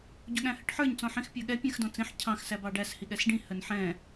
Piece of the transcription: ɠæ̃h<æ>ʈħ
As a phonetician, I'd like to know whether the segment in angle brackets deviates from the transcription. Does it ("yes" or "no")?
yes